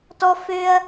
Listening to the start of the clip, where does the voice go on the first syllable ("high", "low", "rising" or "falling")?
high